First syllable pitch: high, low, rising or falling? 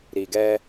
low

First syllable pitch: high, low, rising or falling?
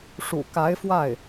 low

